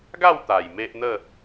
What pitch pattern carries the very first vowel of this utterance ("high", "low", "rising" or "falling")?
falling